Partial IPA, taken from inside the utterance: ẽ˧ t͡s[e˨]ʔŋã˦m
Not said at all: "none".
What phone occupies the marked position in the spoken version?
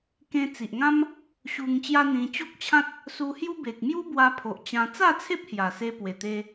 i˨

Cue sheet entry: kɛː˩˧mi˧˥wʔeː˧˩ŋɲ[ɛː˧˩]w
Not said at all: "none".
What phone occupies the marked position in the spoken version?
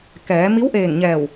ɛː˧˩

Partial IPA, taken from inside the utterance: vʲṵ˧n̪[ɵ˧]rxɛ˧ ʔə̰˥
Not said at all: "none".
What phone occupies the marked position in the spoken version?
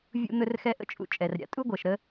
ɵ˧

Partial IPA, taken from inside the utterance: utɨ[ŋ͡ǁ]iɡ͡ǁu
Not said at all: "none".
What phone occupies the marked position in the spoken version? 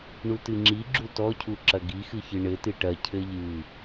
ŋ͡ǁ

